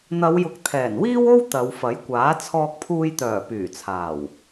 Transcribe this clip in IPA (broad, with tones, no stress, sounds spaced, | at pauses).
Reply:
n̪ ɐ˨˧ w j ʊ˨ k̚ t̪ʰ ɛː˨˩ n w iː˥ w o˥ w t̪ ɐ˨˧ w f ɐ˨˥ j kʷ aː˨˥ t͡sʰ ɔː˧ k̚ pʰ uː˧ j t̪ œː˨˩ p yː˨˩ t͡sʰ aː˨˩ w